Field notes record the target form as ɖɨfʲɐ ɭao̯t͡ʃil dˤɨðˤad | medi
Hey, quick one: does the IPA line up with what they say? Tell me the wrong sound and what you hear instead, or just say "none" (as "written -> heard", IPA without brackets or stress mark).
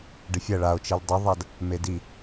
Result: none